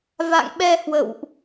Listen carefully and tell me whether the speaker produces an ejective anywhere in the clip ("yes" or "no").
no